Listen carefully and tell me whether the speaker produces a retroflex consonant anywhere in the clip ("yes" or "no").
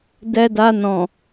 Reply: no